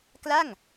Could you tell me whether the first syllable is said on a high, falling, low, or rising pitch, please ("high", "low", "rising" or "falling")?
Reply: falling